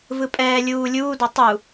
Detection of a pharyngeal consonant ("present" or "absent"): absent